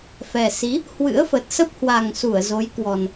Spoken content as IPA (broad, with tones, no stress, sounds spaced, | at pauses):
f ɛ˨˩ s i˨˦ | h w ɨ̰˧˥ ə̯ f ə˨˩ t̚ s ə˦˥ p̚ h w a˨˩ ŋ s u˧˩ ə̯ z o˨˦ j k w ɔ˨˩ n